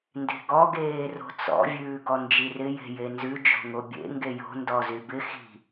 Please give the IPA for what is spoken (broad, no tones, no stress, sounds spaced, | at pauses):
n d e̤ ɡ ɔ ɡ eː r o̤ t͡s ɔ̰ vʲ ʉː ɡ ɔ n d͡ʒ i r ɪ j e̤ j e n z ʉ d͡ʒ o̤ ŋ o bʲ ḛ ŋ ɡ e j o̤ n d ɔ z y b ɪ x i̤